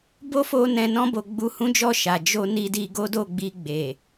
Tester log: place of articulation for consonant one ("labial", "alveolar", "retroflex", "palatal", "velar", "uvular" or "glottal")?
labial